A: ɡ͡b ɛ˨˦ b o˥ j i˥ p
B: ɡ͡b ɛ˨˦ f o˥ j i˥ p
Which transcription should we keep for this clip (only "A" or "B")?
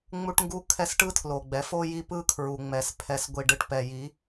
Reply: B